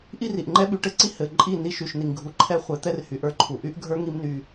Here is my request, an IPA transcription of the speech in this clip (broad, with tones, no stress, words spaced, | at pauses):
ʔi˦ri˨ʔŋ͡ǃɛ˦ ɓy˨ʈɘ˧ǀi˧ hɘ˨ ǃʼi˦˨ ni˧ʃy˨ʃni˨ŋ ɡʱu˨ǃʰɛ˦χʷɛ˨˦ t̪ɛ˦rhy˨ ʔə˞˧ǃʰu˨ʔy˦ʔɡʱə˞˦ ŋi˦mny˧